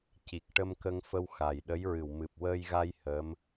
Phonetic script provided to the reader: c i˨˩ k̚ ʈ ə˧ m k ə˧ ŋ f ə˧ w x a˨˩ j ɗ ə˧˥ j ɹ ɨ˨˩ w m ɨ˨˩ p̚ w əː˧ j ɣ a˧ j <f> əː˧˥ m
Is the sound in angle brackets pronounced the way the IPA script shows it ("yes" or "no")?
no